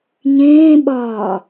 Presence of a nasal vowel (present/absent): present